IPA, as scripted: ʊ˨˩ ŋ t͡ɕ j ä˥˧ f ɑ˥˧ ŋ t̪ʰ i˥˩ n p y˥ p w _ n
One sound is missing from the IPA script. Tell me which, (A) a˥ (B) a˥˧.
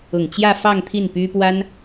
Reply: A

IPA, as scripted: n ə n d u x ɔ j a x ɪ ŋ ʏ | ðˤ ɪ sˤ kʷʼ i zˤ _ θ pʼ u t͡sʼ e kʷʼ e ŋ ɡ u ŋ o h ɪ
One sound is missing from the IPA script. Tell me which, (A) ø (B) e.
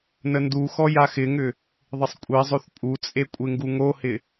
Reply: A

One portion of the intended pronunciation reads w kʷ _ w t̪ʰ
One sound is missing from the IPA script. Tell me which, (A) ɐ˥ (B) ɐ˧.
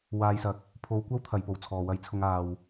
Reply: A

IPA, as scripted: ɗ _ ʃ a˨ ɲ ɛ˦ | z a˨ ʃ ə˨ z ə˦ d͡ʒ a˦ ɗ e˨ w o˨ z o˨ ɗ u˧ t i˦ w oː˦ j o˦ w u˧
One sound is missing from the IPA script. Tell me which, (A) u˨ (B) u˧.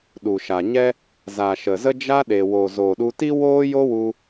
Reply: A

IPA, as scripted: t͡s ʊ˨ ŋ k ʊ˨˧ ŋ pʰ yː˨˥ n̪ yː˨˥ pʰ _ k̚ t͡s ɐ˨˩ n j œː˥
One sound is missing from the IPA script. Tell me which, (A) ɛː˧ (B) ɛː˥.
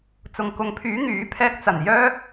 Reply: B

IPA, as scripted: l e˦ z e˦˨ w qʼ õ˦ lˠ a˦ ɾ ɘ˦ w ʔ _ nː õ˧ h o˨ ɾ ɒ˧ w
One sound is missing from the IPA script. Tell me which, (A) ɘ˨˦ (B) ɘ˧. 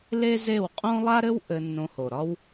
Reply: B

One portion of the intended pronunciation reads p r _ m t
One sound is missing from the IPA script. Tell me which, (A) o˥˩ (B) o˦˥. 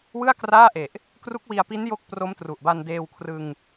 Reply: B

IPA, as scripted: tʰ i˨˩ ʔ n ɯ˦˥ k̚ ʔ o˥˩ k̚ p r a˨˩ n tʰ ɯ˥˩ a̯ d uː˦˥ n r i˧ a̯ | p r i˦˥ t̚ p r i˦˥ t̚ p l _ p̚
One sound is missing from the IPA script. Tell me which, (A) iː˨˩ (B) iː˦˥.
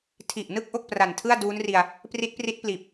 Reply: A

